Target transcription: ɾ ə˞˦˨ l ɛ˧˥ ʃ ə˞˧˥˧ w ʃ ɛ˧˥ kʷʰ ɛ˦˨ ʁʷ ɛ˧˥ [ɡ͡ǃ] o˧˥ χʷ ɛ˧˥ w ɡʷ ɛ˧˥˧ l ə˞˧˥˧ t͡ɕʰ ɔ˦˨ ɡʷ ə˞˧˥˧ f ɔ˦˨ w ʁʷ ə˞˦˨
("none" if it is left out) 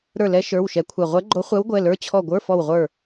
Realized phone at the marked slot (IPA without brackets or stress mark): ɡ͡ǃ